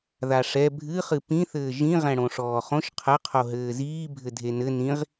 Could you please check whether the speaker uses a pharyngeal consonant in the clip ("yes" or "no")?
no